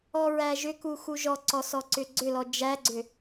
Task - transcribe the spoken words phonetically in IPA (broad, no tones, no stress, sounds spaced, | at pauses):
ɔ ɹ æ ʒ ʏ k u x u ʒ ɔ ǀ ɔ s ɔ ǀ ʏ ɡ͡ǀ ʏ l ɔ d͡ʒ æ ɡ͡ǀ ʏ